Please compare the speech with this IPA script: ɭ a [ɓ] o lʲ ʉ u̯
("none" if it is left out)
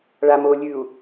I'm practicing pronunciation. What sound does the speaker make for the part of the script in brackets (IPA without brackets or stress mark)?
m